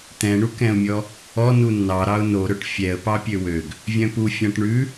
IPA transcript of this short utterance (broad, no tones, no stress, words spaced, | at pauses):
t̪ɛ̃ɳukɛ̃ʊ̯mʲɔ | ɔnu nːɑ ɾɑʊ̯noɾɵʈ fʲɛə̯ pɑpʲøwøɡ | vʲœ̃pu fʲɑ̃ʈɳʉ